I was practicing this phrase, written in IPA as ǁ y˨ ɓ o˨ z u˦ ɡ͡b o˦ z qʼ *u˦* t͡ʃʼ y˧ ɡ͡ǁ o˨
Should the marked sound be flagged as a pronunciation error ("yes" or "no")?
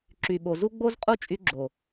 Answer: no